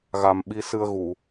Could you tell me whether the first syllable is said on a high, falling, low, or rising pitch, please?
low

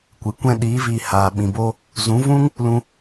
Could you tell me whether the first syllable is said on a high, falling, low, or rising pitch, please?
low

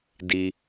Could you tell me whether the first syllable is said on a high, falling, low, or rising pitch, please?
low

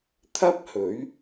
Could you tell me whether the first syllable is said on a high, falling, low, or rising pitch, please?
high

